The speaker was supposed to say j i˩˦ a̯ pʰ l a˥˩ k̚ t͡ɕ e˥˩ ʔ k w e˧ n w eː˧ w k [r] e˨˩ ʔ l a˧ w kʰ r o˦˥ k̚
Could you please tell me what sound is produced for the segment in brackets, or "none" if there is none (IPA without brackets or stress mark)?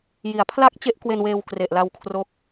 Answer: r